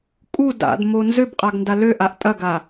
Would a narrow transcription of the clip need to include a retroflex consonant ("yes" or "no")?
no